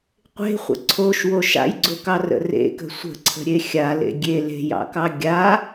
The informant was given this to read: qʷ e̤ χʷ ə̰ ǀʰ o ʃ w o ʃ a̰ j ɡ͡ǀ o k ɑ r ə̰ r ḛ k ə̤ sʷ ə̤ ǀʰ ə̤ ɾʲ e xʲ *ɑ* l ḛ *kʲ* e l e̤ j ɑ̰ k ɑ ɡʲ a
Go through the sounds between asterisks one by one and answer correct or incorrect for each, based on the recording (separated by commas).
incorrect, incorrect